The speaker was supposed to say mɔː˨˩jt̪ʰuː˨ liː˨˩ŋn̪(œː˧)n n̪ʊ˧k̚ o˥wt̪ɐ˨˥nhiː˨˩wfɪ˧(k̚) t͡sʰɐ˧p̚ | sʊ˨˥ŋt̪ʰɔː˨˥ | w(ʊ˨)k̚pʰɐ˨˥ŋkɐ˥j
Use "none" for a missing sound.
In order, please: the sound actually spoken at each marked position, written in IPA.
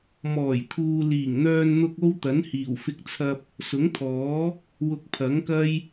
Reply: œː˧, k̚, ʊ˧

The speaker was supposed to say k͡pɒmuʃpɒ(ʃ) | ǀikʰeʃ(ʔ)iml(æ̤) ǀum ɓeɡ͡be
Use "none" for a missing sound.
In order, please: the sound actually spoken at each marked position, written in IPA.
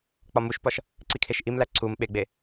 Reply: ʃ, ʔ, æ

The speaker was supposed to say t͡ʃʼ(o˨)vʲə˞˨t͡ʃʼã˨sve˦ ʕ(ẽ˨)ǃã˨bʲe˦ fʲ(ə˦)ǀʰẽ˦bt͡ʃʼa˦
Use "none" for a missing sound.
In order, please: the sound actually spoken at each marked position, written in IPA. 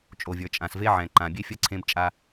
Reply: o˨, ɛ̃˨, ɐ˦

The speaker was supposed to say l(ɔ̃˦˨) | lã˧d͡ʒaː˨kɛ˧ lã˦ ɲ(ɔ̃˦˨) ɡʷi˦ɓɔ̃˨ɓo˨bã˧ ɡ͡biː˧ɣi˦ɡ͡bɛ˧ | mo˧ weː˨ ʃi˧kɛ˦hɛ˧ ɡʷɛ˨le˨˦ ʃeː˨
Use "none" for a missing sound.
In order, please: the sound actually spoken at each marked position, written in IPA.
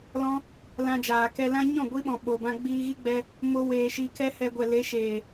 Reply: ɔ̃˦, ɔ̃˦˨

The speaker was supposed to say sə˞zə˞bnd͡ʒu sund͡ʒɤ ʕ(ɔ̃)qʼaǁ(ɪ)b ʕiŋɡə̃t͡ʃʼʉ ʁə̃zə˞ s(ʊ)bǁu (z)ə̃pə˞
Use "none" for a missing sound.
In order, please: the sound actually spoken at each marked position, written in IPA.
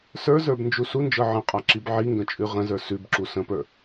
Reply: ə̃, i, ʉ, s

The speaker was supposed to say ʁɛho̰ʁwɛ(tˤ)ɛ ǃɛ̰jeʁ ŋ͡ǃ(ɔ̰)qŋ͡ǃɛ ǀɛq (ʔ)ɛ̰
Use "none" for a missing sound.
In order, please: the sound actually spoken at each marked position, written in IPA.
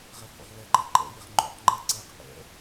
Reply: ǃ, o̰, ʔ

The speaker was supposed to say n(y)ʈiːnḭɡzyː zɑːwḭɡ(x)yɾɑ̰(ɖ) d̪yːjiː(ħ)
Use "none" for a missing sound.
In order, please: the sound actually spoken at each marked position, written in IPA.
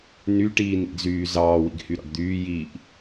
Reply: y, h, ɖ, ʔ

